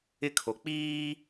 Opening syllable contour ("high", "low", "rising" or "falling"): falling